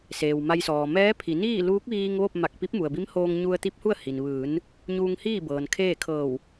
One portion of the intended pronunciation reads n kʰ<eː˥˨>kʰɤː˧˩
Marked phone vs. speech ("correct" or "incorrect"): correct